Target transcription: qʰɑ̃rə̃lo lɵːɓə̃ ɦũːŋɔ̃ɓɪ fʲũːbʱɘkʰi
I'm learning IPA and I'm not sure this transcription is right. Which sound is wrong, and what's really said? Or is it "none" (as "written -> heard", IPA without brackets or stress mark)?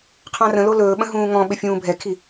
ɘ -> ɛ